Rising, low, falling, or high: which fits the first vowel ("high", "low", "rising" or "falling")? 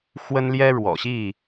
high